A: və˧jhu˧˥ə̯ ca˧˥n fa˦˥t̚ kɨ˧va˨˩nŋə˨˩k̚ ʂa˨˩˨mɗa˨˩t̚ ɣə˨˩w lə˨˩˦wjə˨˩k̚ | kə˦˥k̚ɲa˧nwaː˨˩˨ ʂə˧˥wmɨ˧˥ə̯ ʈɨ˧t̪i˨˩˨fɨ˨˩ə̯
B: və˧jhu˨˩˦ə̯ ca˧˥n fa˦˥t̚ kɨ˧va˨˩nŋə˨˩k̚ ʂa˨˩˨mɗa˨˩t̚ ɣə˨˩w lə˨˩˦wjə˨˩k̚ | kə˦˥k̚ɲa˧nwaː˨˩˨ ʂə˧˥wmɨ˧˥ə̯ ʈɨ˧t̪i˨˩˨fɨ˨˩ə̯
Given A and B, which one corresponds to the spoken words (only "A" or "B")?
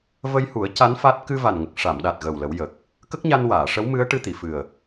B